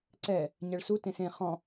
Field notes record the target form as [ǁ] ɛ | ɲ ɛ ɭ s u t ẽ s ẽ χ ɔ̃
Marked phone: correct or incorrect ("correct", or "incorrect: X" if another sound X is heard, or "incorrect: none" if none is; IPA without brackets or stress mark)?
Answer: incorrect: ǀ